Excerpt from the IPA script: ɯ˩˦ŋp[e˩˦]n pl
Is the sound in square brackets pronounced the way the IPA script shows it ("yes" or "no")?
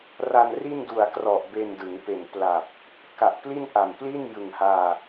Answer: no